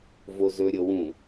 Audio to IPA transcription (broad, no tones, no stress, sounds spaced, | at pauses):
v o z ɵ ɾʲ ɤ w ũ